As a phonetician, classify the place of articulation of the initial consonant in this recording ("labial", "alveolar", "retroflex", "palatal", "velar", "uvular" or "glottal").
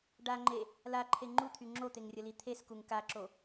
retroflex